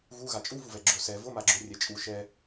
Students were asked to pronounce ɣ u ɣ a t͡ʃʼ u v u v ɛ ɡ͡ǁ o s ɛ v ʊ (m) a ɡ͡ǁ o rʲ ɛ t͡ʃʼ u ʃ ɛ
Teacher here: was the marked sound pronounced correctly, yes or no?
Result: yes